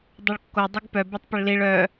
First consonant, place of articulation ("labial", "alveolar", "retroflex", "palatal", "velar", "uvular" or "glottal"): alveolar